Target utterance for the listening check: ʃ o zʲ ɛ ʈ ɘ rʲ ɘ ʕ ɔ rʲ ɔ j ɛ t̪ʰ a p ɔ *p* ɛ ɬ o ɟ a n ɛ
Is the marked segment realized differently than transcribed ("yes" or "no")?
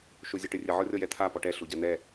yes